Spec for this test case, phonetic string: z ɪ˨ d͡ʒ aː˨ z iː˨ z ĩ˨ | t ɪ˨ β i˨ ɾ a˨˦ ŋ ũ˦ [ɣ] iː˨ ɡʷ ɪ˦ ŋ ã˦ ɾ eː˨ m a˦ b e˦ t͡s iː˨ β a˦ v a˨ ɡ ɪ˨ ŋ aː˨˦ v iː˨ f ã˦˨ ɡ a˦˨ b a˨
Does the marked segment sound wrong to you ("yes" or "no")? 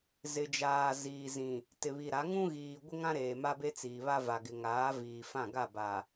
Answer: no